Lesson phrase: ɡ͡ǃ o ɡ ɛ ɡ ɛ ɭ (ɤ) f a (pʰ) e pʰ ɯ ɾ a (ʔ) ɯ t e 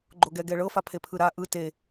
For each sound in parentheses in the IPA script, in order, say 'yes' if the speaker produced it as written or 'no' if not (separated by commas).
yes, yes, yes